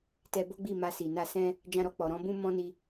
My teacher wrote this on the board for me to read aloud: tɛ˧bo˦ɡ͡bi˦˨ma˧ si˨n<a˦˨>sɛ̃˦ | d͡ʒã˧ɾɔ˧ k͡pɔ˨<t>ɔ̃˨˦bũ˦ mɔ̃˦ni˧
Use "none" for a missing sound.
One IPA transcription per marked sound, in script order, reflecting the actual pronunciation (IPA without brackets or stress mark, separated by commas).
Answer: a˧, ɾ